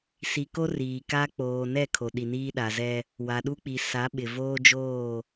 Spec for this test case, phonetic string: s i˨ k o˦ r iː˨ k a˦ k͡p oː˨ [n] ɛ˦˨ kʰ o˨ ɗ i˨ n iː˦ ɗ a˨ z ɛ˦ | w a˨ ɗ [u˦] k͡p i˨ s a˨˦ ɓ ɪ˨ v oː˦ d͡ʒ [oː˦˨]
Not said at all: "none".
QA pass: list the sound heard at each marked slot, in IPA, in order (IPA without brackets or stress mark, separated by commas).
n, u˦, oː˦˨